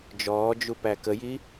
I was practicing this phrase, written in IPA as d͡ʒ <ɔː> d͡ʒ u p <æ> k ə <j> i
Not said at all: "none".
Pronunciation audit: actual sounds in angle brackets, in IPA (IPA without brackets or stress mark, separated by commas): ɔː, æ, j